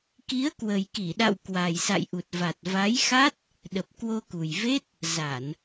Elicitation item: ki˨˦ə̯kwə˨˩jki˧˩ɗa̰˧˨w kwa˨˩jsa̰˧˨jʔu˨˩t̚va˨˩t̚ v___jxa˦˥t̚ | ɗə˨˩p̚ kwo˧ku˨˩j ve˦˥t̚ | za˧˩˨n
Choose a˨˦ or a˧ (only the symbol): a˨˦